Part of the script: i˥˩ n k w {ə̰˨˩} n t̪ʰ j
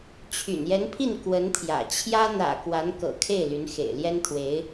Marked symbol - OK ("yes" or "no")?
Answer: no